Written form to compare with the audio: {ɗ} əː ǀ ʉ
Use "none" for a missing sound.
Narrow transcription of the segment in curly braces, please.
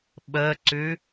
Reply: ɓ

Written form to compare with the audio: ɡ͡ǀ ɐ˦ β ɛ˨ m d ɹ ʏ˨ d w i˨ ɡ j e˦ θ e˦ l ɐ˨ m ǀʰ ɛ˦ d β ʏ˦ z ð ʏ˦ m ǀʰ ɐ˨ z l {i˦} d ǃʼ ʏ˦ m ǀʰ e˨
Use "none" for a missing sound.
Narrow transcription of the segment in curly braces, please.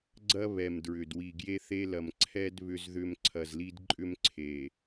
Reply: i˦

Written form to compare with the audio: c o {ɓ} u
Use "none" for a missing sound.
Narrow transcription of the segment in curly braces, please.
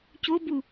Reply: b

